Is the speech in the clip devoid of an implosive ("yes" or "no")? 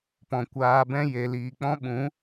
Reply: no